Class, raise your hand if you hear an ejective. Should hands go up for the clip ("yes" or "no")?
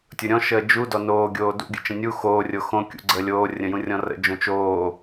no